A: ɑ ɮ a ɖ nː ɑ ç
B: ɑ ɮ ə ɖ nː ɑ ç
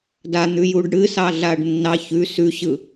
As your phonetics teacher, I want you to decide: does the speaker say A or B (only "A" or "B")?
A